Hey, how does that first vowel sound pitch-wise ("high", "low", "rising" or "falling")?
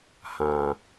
low